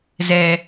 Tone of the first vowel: low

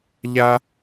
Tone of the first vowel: high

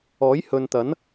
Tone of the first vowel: rising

